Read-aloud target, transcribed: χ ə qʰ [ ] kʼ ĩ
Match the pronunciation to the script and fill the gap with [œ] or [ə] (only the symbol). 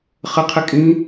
ə